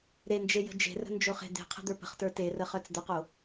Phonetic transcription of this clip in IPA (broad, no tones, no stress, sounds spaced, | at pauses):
ɾ e n d͡ʒ e j ə̤ d͡ʒ e̤ r ə̤ n d͡ʒ o χ e̤ d̪ e̤ qʰ ə̤ d̪ ə˞ p ə̤ χ t ə˞ t e r ə χ œ t͡s d̪ ə q o